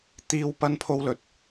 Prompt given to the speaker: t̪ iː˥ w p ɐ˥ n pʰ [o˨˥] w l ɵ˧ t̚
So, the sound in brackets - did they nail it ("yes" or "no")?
no